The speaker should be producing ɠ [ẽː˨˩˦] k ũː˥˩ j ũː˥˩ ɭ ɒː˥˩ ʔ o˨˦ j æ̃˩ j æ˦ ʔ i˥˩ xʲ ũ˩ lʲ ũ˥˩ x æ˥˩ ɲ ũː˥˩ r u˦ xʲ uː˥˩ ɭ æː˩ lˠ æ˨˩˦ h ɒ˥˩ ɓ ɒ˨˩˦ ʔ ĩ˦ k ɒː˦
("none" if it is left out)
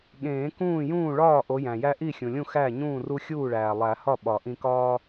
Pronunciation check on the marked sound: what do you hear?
ẽː˨˩˦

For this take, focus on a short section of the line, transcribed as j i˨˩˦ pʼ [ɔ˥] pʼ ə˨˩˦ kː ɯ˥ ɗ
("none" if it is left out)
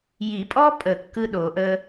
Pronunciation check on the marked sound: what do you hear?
ɔ˥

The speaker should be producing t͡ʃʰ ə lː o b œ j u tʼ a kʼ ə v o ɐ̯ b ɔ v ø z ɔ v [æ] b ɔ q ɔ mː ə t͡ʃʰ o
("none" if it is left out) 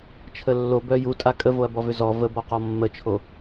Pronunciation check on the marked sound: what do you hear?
ə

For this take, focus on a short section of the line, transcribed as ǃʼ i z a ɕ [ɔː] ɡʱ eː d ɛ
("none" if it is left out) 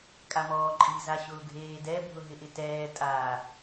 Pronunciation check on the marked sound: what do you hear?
ʊː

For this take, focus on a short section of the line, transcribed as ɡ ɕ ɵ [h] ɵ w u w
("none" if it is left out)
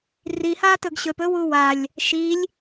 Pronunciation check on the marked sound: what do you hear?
p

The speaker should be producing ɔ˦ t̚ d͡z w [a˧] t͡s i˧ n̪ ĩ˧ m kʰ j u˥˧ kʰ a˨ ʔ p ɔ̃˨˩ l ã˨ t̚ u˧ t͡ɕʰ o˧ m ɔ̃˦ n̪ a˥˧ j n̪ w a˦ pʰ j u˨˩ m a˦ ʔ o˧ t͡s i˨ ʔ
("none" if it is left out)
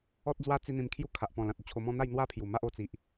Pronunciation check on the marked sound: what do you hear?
a˦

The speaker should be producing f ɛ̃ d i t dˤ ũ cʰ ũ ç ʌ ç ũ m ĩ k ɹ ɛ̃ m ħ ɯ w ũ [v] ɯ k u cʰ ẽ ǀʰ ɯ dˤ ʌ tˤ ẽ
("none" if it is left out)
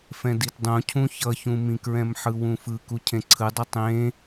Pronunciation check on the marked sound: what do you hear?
f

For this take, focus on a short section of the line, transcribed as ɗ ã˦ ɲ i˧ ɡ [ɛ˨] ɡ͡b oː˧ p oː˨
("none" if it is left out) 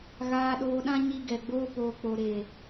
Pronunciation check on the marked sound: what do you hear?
ɛ˨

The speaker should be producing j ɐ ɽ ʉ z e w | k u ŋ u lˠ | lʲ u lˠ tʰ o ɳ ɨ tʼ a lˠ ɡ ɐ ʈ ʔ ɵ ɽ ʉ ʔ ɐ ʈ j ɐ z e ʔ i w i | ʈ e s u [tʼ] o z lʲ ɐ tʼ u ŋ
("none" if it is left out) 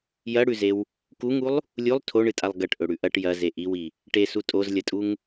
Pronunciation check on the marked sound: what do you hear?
tʼ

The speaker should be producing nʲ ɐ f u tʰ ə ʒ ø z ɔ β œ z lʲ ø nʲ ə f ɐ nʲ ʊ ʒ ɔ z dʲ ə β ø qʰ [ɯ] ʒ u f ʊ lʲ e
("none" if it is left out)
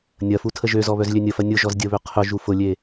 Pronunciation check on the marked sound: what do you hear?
ʊ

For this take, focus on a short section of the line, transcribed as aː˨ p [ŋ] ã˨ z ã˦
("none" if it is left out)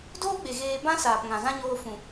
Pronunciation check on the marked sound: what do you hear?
ŋ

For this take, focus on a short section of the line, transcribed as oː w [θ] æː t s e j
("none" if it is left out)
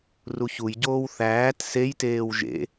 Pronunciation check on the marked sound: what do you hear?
θ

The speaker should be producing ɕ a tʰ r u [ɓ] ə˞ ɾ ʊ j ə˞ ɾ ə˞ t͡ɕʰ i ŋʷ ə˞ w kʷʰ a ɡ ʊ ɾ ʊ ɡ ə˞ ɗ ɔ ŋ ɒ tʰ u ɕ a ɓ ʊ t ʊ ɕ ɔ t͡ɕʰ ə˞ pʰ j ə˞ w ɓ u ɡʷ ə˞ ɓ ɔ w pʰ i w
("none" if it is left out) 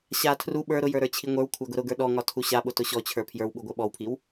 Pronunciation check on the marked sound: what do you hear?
ɓ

